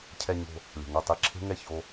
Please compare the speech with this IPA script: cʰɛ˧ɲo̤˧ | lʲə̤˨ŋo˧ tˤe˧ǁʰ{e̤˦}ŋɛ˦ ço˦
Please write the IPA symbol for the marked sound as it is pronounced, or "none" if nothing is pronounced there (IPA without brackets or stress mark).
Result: e̤˦